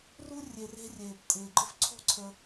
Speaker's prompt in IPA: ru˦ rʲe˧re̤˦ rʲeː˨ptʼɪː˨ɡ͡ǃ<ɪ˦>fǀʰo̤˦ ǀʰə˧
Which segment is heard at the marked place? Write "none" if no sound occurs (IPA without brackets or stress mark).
ɪ˦